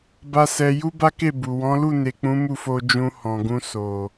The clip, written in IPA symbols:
ba˦sɛ˧ ju˦ba˦ke˦˨bu˨ wɔ̃˨˦lu˦˨ne˨k͡pũ˨˦ mu˦˨fo˧d͡ʒũ˧ hɔ̃˨ɡũ˧ so˨

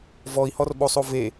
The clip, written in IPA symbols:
vɔi̯hɔrɓosˤo ve

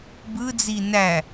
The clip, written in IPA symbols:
bɯd͡zi næ

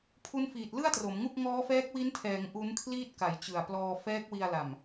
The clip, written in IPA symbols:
pʰu˦˥nfiː˨˩t̚ lɯ˥˩a̯tro˩˦m ŋu˥˩k̚ ŋɔː˦˥fɛː˦˥k̚wi˦˥ntʰɛː˩˦ŋ ʔu˦˥nkʰliː˥˩t̚ka˨˩j t͡ɕɯ˨˩a̯plɔː˧ fɛː˦˥k̚wi˧a̯la˨˩m

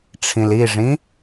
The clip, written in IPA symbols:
ʈ͡ʂʰĩliʐĩ

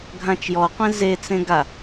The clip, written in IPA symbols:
ɡʱãt͡ʃjɔqʷẽ zet͡sẽ ɡa

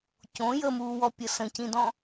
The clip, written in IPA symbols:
cõ jəmuːwɔpʲə sə̃cĩdɔ̃

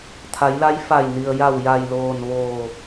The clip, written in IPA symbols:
t̪ʰa˩˧jla˧˥j fa˧˩j ni˩ə̯ja˧˩w ja˧˩jloː˧˩n ʋoː˧˩

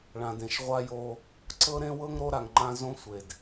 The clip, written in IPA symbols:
ɭã˨dẽ˨ʃ ʁʷa˦jo˦ | ǀɤ˦ ɾẽ˦wɤ˦ŋ ɾo˦ɾa˨ŋŋ͡ǃã˦ zõ˦sʷe˨d

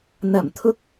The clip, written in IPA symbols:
n̪ɐ˨˩mt̪ʰʊ˨˥k̚

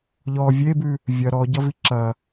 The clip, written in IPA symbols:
ʎɔ vʲebʉ | vʲɐ ɾɔɟʌvi ǁɐ

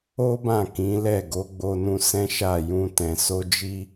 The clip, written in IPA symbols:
o˦bã˦˨ kĩ˨˦lɛ˦˨ ɡo˨˦ɡ͡bo˧nũ˧ sɛ̃˦ʃa˦˨jũ˧ tɛ̃˨so˧d͡ʒi˧

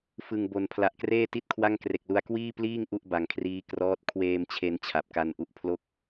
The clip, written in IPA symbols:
fɯ˨˩ŋ bo˩˦n pʰla˨˩ʔkreː˥˩ ti˥˩t̚kʰwa˥˩ŋ kre˨˩k̚lu˧a̯ kwiː˥˩pliː˥˩ŋ ʔu˥˩ʔba˨˩ŋkʰriː˦˥ krɔː˦˥t̚ kʰweː˧mt͡ɕʰe˧n t͡ɕʰa˨˩p̚ka˧nʔu˦˥ʔpʰlo˥˩k̚

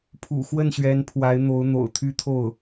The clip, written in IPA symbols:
pʰṵ˨˩xwə˥˩nɕɥɛ˧˥n pʰwa˧˥ɪ̯n̪o˧˥ʊ̯n̪o̰˨˩ʊ̯t̪ʰy˥ t̪ʰo˥˩ʊ̯

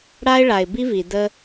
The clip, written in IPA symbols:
ɽa˦ɪ̯ ɭa˩ɪ̯bi˥vi˩ də˦

